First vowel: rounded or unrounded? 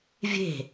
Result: unrounded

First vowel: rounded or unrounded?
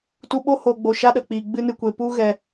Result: rounded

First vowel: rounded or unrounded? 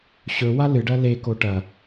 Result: rounded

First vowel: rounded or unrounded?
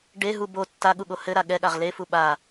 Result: unrounded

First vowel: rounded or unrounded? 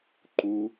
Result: rounded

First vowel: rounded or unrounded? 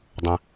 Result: unrounded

